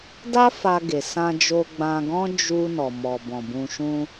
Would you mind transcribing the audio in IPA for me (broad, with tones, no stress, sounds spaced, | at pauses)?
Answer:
d a˦ f a˧ ɡ e˨ s ã˧ d͡ʒ o˧ ɡ͡b ã˧ ɡ ɔ̃˦ d͡ʒ u˧ n ɔ˨ m ɔ˨ b ɔ̃˨ b ũ˨ ʃ ũ˧